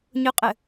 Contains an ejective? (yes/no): yes